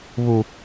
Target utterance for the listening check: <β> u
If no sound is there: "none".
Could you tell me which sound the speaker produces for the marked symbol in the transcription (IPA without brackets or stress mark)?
β